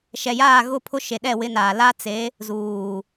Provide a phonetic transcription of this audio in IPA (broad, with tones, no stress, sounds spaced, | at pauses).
ʃ ɛ˨ j aː˦˨ ɣ ʊ˦˨ pʰ ʊ˦ ʃ e˨ ɗ ɛ˦˨ w ɪ˦ n aː˨ l a˦ t͡s e˨˦ | z uː˨